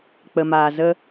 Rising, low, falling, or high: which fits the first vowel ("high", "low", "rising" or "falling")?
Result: low